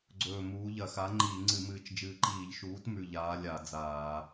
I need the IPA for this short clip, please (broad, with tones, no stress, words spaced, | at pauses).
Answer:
ɡ͡ǀɵː˧˩muː˨˥ ʎɐ˧˩˧xa˨˥ ŋ͡ǃiː˧˩˧ŋ͡ǀɨ˧˩˧mɨː˧˩t͡ʃ d͡ʒɨː˧˩ǃiː˧˩˧ʎ ʃuː˨˥tmʉ˧˩ ʎaː˨˥lʲa˧˩˧ d͡zaː˧˩˧